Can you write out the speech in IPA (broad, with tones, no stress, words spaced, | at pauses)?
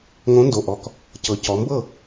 ŋõ˨˥ndo˩˧˩ ʔɔ˩˧˩k | cɤ˩˧cɔ˩˧mbɤ˥˩